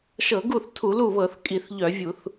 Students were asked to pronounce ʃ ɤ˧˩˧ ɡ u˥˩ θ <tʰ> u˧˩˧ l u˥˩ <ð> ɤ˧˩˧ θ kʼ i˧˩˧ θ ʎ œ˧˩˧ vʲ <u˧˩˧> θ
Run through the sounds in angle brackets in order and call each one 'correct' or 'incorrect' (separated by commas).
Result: correct, incorrect, correct